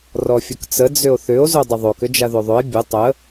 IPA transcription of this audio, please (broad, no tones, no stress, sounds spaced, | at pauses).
r ɔ fʲ ɵ k t͡s ə d͡z ʏ o̯ θ ʏ o̯ z o dˤ ə ðˤ o k ʏ d͡ʒ a ð o ðˤ ɵ e̯ bʲ ʊ tˤ ə